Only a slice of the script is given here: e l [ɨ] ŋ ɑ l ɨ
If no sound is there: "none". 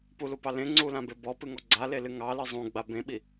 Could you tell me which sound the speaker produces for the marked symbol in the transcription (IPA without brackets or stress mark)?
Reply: ɨ